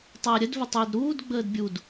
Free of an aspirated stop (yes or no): yes